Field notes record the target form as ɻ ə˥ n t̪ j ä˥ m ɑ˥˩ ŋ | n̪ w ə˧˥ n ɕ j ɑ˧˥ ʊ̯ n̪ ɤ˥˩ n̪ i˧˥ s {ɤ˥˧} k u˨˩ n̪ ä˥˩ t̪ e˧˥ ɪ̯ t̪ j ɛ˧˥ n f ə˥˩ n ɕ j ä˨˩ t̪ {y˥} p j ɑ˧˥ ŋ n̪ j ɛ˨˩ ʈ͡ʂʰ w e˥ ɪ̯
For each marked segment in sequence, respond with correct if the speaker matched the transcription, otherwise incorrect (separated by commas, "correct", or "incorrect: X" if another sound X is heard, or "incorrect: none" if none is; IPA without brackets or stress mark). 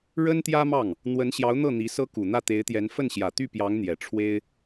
incorrect: ɤ˥, incorrect: y˥˩